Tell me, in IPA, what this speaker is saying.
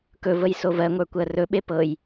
kɵvəj sovɜŋʷə˞ kʷɜrɵɓe pɤj

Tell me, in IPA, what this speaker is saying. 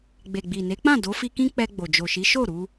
ɡ͡be˨ɡ͡bi˨ ne˨˦k͡pã˦˨ do˨˦fi˧kĩ˦ k͡pɛ˧ɡ͡bo˨d͡ʒo˨ʃi˨˦ ʃo˦˨ɾu˧

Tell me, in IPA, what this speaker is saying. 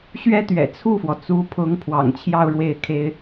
ɕɥɛ˥t̪ɥɛ̰˨˩ t͡sʰu˥˩fwɔ˩t͡su˧˥pʰʊ˧˥ŋ pʰwɑ̰˨˩ŋt͡ɕʰjɑ˥˧ʊ̯ ɻwe˥˩ɪ̯kʰe˥ɪ̯

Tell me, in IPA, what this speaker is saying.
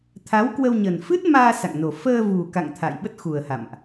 t̪ʰa˨˦wkwə˧w ɲə˨˩nfɨ˦˥t̚maː˧ sa̰˧˨ŋno˨˩ fəː˧vu˨˩ka̰˧˨ŋ t̪ʰa̰˧˨j ɓə˦˥t̚xu˨˩ə̯ha̰˧˨mʔ

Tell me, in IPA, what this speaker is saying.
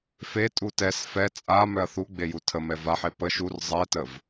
fe tʼutɛs fɛ t͡sʼa mœɐ̯θuɡ͡beju tʰəmɛ vaħe pə ʃur zˤɛtəv

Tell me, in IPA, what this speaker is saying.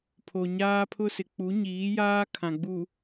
pʰo˨ɲaː˦pʰʊ˦sɪ˨ k͡pu˨˦ɲiː˨˦jaː˦ kʰã˨ɡ͡bu˨

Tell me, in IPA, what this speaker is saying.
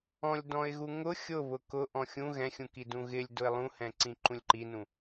ɔ̃lʲdɔ̃ɪ̯ɣu ŋʊ xʲʊ βʊkʊ ʔɔ̃xʲũ ɣɛ̃xʲũki dũɣɪlʲ dʊɪ̯lˠũhɛ̃ ǀĩǃũlʲǃinũ

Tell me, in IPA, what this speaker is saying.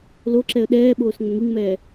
loǁɛə̯ ɗɛːɓoːs ŋ͡məŋiŋmɛː

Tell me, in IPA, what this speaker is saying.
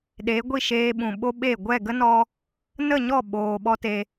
ɗe˨˦ɡʷi˦˨ʃeː˧ ɓũ˨ɓo˦ɓe˦˨ ɡʷɛ˦˨ɡə˦nɔ˧ | nə˦˨ɲɔ˦˨ ɓoː˧ ɓɔ˦te˧

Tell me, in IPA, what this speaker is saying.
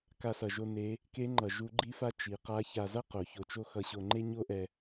ka˧sʌ˩ʒo˧ ne˩˧ | ke˧˥ŋ͡ǃʌ˩ ʒu˧˥ɡ͡ǃi˥fa˥ t͡ʃi˩˧ qa˧˥ça˧zʌ˥ qo˩˧ço˧t͡ʃo˥ xʌ˧ɕo˧ŋ͡ǃe˥ ɲo˥ʔɛ˧

